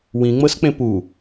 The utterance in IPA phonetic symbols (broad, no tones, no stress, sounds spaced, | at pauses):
w ĩ ŋ͡m ɤ s k͡p ẽ p u